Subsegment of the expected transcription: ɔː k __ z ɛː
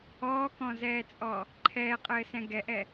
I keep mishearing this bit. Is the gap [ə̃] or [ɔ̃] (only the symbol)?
ɔ̃